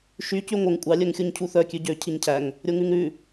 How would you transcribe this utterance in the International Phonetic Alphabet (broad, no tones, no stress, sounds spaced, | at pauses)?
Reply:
ʃ y c y ŋʷ œ ŋ kʷʼ ɑ lʲ œ ŋ xʲ u ɲ cʰ u θ œ kʲ ʉ ɟ ø cʰ i ɲ cʰ æ ŋ | ɾʲ o ŋ ʉ ŋ ɾ ʉ